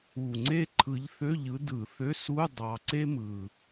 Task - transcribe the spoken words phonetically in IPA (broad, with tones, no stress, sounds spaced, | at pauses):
u˨˩ ŋ͡ǀ e˥ ǃʰ ɯ˨˦ ʎ θ ø˧˥˧ ʎ ɯ˨˦ d ɯ˧˩˧ θ ø˧˥˧ s u˧˥˧ dˤ ɑ˨˦ ǀ e˥ m ɯ˨˩